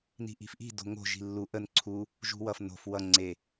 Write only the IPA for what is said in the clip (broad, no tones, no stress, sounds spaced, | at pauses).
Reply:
n i̤ ʔ i̤ f ʔ i̤ d o̤ ŋ o̤ ʒ i̤ lː u ʔ ə n ǀʰ u | ʒ ṳ w ʌ f n o̤ f w ʌ ŋ͡ǀ e